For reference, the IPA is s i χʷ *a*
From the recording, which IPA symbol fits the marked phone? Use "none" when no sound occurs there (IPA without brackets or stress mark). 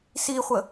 ə